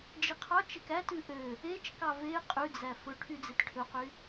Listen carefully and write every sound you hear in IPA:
d͡ʒiqʰɑt͡ʃek ætʉ ʔø | et͡ʃkɑ ve qʼʉd͡zæ fɵʈʰy d͡zetʈʰɵqy

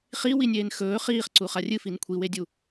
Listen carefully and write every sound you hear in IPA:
χiwinʲeːn xɵː χiːχǀu χarʲɨfin kʷʰiwedʲu

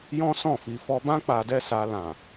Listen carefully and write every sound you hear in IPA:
jɔ̃˦sɔ̃˦˨fi˧ fɔ˧bã˦ k͡pa˧dɛ˦sa˧ lã˨

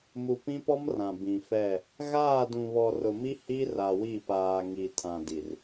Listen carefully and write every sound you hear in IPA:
mu˨pĩ˦pɔ˦m rã˨bĩ˨fɛ˦˨ | ɣaː˦˨dũ˨βɔ˨ rʊ˨mi˦ hi˦ ra˨wi˦˨paː˨ ŋi˨tʰã˨di˨r

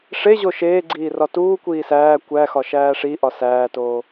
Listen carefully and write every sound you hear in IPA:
ʂeʑo ʃeːɡ͡ǀiː rɒtuːkʷiː sæː kʷæxɒ ʃæːʂiʔɒ sæːtoː

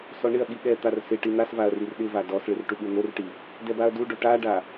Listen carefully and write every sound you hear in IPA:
sɔɳɪɐ̯ɠi ɠɛ t̪arsɪʈi n̪asvaɐ̯ rirɗɪva dɔsɭɪr ʈuɠun̪orʈi | dɛbaɐ̯duɖo ʈaɖa

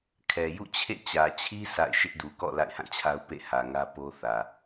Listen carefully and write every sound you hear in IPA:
kʰɛ˨jṵ˦˨t͡ɕʰḛ˦˨ t͡ɕä˨t͡ɕʰi˦ sa̰˦˨ɪ̯ ʃɪ˦ʔdu˨kɔ̰˦˨ la̰˦˨ɪ̯hã˦˨t͡ɕʰa˦ʊ̯ pḛ˦˨hä˨ŋä˦ po˦ θä˨

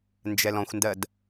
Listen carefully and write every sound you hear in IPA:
nd͡ʒɛlɔ̃xʷndɜd

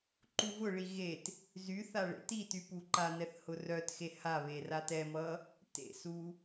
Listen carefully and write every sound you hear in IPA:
ǃuvʊɭi ɣet | zyθa ɭḛtity puǃanɛθ hʊrœtxe ha βeratɛmʌ | tḛsu

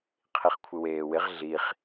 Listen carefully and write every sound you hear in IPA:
qʰiχkʷʰɪweːwɪʁ ɮiχ

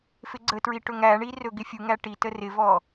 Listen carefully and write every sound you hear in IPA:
fɪɡ͡ǀətɹi ʈɵŋæɳi rɵɡɪfʲuŋæ ʈitə rɪvɔ

